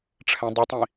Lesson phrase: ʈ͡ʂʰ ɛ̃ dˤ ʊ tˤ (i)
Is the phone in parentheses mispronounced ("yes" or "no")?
yes